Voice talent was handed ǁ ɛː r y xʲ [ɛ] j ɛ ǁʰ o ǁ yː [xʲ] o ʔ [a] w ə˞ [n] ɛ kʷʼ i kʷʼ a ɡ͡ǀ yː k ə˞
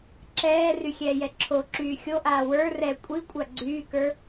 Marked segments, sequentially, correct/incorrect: incorrect: ɛː, correct, incorrect: aː, incorrect: r

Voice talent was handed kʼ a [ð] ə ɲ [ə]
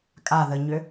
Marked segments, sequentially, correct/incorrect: correct, incorrect: ʏ

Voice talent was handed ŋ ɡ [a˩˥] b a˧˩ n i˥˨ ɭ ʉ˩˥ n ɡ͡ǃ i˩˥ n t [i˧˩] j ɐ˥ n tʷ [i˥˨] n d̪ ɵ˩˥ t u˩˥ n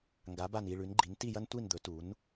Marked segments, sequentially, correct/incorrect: correct, incorrect: i˥˨, correct

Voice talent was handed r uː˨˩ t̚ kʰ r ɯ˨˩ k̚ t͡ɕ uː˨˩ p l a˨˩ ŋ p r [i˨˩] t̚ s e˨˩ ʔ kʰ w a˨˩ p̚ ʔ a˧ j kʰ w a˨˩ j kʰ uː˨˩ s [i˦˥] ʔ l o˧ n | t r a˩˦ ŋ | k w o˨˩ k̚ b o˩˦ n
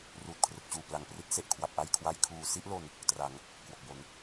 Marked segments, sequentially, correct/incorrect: incorrect: i˦˥, incorrect: i˥˩

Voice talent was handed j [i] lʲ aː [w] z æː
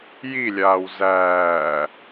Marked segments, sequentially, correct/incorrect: correct, correct

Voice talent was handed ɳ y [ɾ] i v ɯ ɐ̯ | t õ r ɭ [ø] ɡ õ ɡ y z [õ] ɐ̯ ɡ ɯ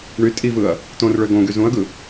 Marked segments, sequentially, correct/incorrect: incorrect: tʼ, correct, incorrect: ũ

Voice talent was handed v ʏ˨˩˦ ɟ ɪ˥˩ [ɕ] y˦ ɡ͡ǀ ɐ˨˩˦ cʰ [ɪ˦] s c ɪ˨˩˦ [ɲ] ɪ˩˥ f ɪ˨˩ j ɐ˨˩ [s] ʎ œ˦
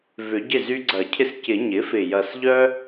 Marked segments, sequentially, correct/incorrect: incorrect: z, correct, correct, correct

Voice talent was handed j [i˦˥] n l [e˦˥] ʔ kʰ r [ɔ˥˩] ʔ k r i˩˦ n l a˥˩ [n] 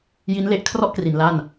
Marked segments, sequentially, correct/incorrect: correct, correct, correct, correct

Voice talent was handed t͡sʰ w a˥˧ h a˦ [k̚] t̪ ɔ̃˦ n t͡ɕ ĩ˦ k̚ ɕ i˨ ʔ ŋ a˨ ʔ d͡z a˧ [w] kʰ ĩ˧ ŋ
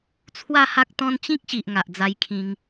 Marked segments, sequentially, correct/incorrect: correct, incorrect: j

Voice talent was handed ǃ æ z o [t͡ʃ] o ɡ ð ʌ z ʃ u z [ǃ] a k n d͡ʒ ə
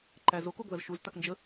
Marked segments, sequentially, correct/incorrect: incorrect: k, incorrect: t

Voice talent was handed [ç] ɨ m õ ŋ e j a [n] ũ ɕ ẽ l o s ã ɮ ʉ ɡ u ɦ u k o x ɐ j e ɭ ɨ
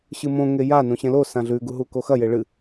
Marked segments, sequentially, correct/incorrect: incorrect: ɕ, correct

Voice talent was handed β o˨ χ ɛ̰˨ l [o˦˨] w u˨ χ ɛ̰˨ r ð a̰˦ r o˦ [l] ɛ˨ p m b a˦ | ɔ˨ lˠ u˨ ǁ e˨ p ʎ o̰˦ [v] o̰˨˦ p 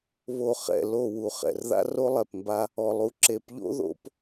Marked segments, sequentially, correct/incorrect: correct, incorrect: lˠ, incorrect: ð

